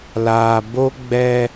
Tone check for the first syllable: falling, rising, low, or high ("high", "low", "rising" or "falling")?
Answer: low